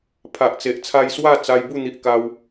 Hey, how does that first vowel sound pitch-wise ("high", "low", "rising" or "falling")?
low